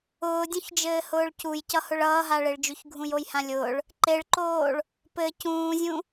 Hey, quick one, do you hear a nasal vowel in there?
yes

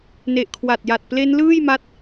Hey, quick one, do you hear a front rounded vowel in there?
no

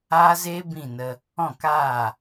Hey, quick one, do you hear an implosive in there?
no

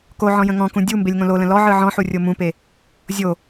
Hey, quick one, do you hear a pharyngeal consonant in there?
yes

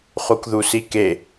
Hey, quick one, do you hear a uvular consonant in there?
yes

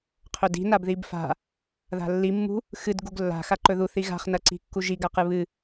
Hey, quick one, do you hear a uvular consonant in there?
yes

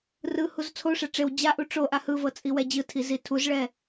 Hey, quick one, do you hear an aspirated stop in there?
yes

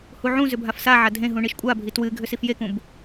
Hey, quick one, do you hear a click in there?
no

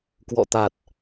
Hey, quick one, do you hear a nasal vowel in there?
no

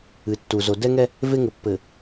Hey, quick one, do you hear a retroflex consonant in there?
no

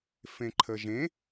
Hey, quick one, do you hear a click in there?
yes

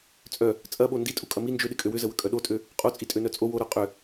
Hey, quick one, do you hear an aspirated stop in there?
no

